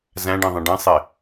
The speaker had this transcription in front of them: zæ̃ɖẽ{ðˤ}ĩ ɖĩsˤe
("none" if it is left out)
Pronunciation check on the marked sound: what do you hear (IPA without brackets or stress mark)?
ðˤ